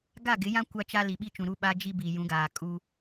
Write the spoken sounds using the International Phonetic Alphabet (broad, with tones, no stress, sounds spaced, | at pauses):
ɡ a˦˨ ɡ ɪ˨˦ j ã˦ kʷ a˦ t͡ʃ a˦ l i˨ ɓ i˦ t͡ʃ ũ˨ ɾ u˦ ɓ a˦ d͡ʒ i˦ b i˨ j ũ˨˦ ɡ aː˨ kʼ u˦